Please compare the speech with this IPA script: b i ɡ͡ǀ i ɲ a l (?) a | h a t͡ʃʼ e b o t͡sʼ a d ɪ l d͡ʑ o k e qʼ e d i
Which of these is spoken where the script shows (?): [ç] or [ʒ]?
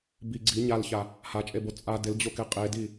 ç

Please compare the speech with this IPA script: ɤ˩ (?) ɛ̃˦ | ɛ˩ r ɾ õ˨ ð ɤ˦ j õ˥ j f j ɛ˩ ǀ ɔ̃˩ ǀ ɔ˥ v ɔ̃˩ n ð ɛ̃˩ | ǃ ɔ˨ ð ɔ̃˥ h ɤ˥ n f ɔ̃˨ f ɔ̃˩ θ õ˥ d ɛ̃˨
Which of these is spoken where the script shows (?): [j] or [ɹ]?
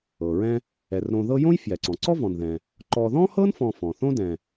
ɹ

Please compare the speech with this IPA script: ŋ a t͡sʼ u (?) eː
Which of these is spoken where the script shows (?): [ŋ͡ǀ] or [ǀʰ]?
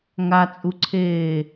ǀʰ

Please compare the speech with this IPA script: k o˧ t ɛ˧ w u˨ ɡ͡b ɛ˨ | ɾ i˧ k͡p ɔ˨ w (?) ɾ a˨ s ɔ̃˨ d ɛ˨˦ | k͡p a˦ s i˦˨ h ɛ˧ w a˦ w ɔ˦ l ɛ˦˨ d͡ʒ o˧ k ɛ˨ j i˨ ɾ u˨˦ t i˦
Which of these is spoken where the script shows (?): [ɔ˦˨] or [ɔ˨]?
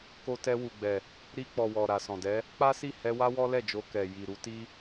ɔ˨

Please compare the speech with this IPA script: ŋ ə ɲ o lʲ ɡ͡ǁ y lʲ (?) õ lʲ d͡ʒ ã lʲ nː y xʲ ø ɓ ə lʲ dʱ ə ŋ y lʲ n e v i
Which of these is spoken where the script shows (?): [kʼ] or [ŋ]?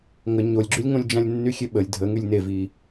ŋ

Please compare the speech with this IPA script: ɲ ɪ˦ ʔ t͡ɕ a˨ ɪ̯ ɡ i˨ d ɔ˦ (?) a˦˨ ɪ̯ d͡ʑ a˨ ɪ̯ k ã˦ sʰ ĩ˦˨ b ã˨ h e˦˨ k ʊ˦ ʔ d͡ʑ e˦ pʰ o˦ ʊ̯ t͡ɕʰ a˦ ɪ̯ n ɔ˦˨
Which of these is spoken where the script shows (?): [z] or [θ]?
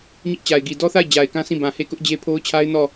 θ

